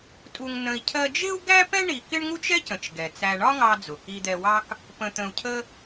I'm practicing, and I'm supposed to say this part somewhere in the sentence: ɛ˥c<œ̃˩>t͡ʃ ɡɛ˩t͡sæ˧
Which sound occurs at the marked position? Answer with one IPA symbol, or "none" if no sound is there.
ə̃˩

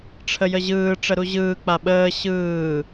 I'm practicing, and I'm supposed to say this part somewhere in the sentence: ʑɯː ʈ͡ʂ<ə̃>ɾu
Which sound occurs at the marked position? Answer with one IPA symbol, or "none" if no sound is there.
ə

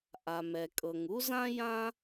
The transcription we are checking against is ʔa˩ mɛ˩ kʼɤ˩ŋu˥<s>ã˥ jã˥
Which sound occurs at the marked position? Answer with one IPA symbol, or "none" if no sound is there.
z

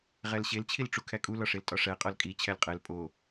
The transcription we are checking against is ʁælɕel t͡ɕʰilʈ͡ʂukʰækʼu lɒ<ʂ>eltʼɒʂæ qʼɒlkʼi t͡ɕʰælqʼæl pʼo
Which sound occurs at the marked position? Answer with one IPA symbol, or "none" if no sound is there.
ʂ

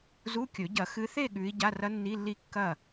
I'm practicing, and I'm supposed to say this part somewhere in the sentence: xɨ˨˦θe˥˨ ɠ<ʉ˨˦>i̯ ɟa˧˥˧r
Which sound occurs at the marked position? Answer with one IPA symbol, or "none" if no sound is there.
ʉ˨˦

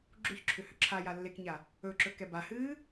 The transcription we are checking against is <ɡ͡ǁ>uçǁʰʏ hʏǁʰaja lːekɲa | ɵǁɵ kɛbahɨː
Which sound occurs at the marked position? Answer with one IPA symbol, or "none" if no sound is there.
ɡ͡ǁ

